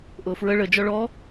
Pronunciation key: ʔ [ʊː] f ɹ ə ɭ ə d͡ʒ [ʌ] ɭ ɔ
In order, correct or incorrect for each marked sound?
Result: correct, incorrect: ɔ

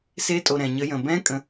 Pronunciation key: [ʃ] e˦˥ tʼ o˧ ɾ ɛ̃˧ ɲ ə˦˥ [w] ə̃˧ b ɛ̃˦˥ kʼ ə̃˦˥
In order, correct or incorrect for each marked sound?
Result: incorrect: s, incorrect: j

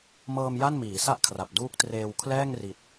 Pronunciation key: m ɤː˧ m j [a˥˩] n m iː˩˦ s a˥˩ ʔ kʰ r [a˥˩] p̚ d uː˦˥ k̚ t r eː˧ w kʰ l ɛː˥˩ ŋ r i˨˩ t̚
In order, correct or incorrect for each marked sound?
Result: correct, incorrect: a˨˩

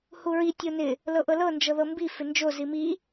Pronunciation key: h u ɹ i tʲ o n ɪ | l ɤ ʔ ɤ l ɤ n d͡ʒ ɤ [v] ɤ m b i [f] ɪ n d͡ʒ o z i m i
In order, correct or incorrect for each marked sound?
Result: incorrect: ð, correct

